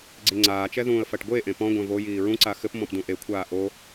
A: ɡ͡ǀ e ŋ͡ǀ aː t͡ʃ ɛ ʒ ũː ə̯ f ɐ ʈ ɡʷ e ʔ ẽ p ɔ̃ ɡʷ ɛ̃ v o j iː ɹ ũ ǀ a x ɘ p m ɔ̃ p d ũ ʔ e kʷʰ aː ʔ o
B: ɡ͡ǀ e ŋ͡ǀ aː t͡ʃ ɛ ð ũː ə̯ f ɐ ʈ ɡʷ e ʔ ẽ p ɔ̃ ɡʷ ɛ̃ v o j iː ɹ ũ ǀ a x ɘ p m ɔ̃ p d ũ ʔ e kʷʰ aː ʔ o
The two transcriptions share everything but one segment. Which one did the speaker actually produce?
B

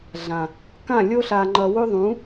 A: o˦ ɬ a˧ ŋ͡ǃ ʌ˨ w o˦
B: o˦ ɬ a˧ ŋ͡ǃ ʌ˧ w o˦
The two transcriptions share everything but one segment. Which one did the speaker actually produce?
B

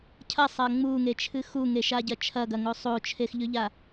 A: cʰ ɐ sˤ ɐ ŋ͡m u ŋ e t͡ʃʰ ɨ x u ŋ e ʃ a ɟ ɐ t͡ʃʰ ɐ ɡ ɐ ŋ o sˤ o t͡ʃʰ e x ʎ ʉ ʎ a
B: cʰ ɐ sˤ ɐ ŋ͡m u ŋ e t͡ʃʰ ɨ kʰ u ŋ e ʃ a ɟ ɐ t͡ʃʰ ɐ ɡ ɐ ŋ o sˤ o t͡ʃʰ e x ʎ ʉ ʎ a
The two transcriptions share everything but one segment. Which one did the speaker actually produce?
A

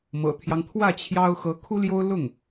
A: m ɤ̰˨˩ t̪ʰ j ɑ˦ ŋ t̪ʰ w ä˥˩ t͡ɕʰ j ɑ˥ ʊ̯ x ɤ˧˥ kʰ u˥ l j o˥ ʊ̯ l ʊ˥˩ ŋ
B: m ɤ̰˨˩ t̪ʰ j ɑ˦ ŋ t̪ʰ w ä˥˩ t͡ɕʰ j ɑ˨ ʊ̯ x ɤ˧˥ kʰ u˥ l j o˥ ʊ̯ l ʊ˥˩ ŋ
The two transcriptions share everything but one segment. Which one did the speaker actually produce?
A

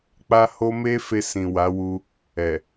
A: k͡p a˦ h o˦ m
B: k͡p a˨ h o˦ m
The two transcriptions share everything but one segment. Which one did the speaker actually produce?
A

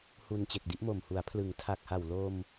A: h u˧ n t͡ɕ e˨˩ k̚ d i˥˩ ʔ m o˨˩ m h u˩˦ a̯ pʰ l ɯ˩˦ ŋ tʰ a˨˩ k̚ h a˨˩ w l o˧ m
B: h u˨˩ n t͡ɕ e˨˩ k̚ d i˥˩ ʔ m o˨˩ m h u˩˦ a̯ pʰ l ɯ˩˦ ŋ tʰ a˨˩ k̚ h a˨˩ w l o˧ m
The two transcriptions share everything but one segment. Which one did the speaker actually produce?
A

